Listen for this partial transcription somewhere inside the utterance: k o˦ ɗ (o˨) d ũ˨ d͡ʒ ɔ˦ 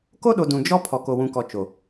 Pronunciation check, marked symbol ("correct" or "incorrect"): correct